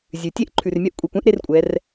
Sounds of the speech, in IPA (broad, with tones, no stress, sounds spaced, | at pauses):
zʲ ʉ˩ tʲ e˥ ʔ ǃʰ ʉ˩ r mʲ œ˥ ʔ kʷʼ i˩ kʷ ɛ̃˧˥ ʔ ɾ e˧ r kʷʼ ɛ˩˧ r